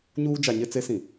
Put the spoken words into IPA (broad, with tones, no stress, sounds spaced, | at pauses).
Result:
ɲ uː˦ d͡ʒ a˨ ɲ ɪ˦ t͡s e˦ s ĩ˨